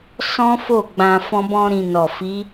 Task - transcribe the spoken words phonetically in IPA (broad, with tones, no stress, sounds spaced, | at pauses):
s ɔ̃˦ f o˦˨ ɡ͡b ã˧ f ɔ̃˦ b ɔ̃˦ ɾ ĩ˧ n ɔ˨ f i˨˦